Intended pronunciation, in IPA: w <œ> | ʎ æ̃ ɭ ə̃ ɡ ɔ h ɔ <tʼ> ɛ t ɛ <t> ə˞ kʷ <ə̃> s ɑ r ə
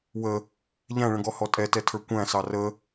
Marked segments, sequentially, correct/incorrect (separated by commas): incorrect, correct, incorrect, incorrect